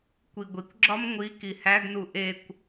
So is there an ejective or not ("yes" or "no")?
no